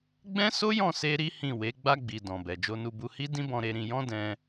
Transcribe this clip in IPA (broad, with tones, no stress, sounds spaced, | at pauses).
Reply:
ɡ͡b ɛ̃˦ s o˦ j ɔ̃˦˨ s e˧ ɾ i˦ h ĩ˦˨ w e˨˦ ɡ͡b a˧ ɡ͡b i˨ d ɔ̃˨ b ɛ˨ d͡ʒ o˧ n u˧ b u˧ h i˦ d ĩ˦ b ɔ̃˧ ɾ e˧ ɾ ĩ˧ j ɔ̃˦ d ɛ̃˧